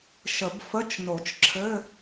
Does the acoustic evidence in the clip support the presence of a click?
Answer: yes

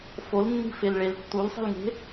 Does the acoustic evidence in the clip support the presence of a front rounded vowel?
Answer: no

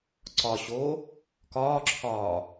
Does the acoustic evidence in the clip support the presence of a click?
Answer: yes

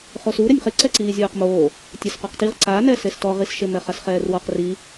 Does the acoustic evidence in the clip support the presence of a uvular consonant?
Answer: yes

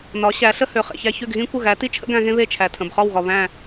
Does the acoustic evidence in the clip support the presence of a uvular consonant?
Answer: yes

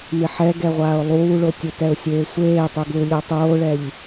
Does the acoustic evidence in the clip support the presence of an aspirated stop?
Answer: no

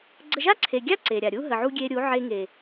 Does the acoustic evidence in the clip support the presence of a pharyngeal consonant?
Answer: yes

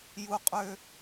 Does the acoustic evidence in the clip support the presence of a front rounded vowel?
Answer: yes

